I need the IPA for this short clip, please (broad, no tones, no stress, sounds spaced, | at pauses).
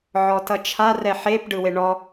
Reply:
ʕ ɔ t ʌ t͡ʃʰ a r ɛ ħ e p ɖ ɯ w e ɳ ɔ